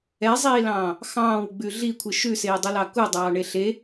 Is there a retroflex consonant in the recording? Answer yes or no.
yes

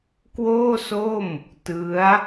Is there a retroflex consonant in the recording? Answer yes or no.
no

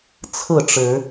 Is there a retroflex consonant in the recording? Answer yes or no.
yes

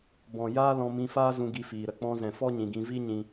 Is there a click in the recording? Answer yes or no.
no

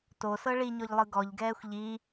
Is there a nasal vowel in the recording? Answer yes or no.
no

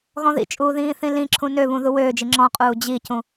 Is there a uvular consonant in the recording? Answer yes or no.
yes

